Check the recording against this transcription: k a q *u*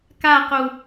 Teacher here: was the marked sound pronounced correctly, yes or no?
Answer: yes